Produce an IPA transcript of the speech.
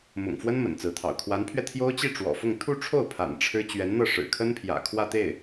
m ʊ̰˨˩ ŋ f w ə˥ n m ə̰˨˩ n t͡s ɹ̩˧˥ t̪ʰ ɑ̰˨˩ ʊ̯ kʰ w a˧˥ n pʰ ɥ ɛ˧ t̪ʰ j o˥ ʊ̯ t͡ɕ i˥˩ ʈ͡ʂ w ɔ̰˨˩ f ʊ˥˧ ŋ t̪ʰ u˥˧ ʈ͡ʂʰ o˥˩ ʊ̯ pʰ a̰˨˩ n ʈ͡ʂʰ ɻ̩˥ t͡ɕ ɥ ɛ˧˥ n n̪ ɤ˥˩ ʂ ɻ̩˨˩ kʰ ə˥ n pʰ j ä̰˨˩ kʰ w ä˥˧ t̪ e˥˩ ɪ̯

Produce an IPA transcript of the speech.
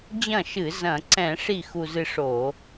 d͡ʑ ɐ̃˥˩ ʃ ɨ˧˩˧ z ɐ̃˧˩˧ ǀ ɛ̃˧˩˧ ʂ i˥˩ x u˧ z ɨ˧ ʂ o˧˩˧

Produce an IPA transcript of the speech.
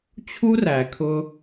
t͡ɕʰ u˦ r æ˨ kʰ ʊ˦

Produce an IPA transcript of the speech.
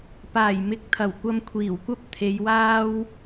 p aː˨˩ j m ɪ˨˥ k̚ t̪ʰ ɐ˨˩ w kʷ ɐ˧ m kʷʰ iː˨˩ w kʷ ɐ˥ p̚ t̪ʰ e˨˧ j w aː˥ w

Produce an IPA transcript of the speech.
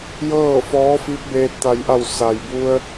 j ɤː˥˨ f ɔː˧˥ f i˧˥ p̚ b eː˧ t̚ t̪ a˩ j ʔ a˧˩ w s a˩ j b u˧ ə̯

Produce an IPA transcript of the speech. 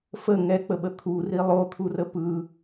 f ə ŋ ɛ k͡p ə ɓ ə t̪ʰ u r i lˠ o t̪ʰ u r ə p ɯ

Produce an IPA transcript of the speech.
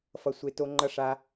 f ʌ˩ sʷ e˩ t o˩ ŋ͡ǃ ʌ˩ ʂ a˩

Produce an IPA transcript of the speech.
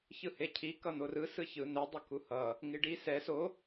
ç ɯ h e cʰ i k ʌ n̪ o r ɯ s ɯ ç ɯ n ɛ dˤ ʌ k u h ʌ | ŋ i ɖ i s ɛ s o

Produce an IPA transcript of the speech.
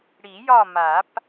ɽ i˨˩˦ j ɒ˦˨ m a˨˩˦ p

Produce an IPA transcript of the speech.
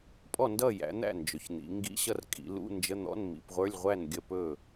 pʼ ɔ˥˨ n d ʌ˥˨ j æ̰˩˧ n̪ æ̰˥˨ n d͡ʒ ɵ˩˧ ç n̪ ḭ˩˧ ŋ ɡ ḭ˧˥˧ ɕ ʌ˥˨ r kʼ ḭ˩˧ l ṵ˧˥˧ n d͡ʒ ə˧˥˧ n̪ ɔ̰˧˥˧ n m ḭ˩˧ p ʁʷ ə˞˧˥˧ lʲ ʁʷ æ˥˨ n ɡʲ ə˥˨ p ɵ˥˨

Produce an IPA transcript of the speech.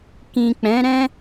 k ĩ˨ k͡p ɛ̃˨˦ ɾ ɛ̃˦

